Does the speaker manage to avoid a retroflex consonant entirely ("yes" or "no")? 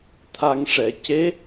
no